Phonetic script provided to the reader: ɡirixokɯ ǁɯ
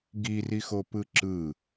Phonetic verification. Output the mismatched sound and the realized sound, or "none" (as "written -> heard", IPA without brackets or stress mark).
k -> p